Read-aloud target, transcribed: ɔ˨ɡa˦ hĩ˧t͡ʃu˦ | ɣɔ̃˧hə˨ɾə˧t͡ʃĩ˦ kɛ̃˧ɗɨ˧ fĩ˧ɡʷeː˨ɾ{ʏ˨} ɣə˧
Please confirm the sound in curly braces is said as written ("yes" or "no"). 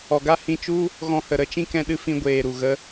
no